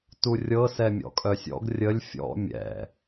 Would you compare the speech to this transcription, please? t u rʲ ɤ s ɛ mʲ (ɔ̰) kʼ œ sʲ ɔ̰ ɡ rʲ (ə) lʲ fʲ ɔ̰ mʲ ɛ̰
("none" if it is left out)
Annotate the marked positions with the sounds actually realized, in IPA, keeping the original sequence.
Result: ɔ̰, ə

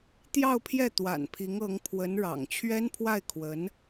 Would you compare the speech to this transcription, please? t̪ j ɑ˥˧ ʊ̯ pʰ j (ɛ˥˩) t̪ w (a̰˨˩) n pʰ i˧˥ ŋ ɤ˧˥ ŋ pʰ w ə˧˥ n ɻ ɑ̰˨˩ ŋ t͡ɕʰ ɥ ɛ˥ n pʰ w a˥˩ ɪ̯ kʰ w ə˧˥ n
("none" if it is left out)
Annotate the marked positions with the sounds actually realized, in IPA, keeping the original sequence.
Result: ɛ˥˩, a̰˨˩

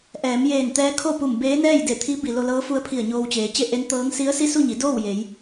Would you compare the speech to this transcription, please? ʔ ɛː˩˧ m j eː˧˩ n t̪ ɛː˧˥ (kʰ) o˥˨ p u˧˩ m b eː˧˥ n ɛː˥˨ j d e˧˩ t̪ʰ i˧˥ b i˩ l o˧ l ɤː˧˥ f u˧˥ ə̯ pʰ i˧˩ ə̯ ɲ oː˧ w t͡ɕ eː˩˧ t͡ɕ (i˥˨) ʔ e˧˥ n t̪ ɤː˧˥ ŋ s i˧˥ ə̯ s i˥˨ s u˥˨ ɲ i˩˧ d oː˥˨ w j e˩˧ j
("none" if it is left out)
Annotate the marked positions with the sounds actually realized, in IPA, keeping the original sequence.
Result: kʰ, e˥˨

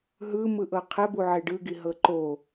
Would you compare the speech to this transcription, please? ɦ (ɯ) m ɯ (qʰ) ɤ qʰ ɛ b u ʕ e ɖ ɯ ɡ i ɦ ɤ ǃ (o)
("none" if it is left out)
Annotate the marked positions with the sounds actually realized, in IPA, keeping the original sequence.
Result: ɯ, ʔ, o

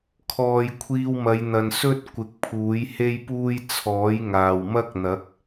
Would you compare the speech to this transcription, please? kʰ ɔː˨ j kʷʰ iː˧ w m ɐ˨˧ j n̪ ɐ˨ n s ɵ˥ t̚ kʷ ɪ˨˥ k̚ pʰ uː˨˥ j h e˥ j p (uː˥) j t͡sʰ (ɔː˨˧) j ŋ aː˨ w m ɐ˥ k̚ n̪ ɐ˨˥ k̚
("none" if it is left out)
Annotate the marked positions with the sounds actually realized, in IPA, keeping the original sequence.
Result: uː˥, ɔː˨˥

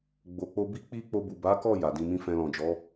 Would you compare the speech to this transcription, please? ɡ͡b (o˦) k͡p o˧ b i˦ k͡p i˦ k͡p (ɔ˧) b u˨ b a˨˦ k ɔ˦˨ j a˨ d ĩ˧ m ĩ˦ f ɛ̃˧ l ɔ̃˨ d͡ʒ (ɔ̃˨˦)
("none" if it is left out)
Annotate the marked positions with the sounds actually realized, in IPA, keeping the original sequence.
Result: o˨, o˧, ɔ˨˦

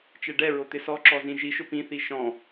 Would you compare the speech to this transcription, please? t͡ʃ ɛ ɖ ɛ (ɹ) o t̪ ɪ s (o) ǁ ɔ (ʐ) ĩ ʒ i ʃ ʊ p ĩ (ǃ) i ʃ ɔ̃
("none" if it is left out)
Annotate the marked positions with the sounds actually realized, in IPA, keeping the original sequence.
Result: ɹ, ɔ, z, θ

